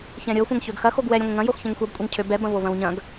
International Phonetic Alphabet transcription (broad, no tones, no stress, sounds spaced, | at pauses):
ç ɛ̃ ɾʲ ɤ xʷ ɐ̃ ŋ ç ø ɡ x ɐ x o ɡ w ɛ ɾʲ ə̃ ŋʷ ə̃ ŋ ɐ̃ j o x ç ɛ̃ ŋ xʷ ɐ b kʷʼ ɛ ŋ cʰ ø b ɛ b ɐ̃ v o v ɐ̃ w ɲ ɐ̃ ɡ